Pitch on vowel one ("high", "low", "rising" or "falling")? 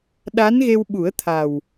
rising